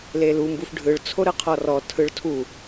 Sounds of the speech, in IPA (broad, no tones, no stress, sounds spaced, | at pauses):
l e l u m b u f ɖʱ ɯ ɭ t͡sʰ o ɾ ɯ qʰ ɔ r ɔ tʰ ɯ ɭ tʰ u